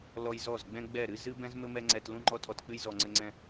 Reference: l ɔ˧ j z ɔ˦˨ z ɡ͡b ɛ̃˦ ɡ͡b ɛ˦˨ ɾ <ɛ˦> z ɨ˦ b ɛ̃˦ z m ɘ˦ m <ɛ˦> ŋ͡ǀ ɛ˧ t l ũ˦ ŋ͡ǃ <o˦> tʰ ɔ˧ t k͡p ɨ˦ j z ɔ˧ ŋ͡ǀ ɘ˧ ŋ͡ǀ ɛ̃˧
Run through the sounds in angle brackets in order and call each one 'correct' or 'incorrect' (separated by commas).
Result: incorrect, correct, incorrect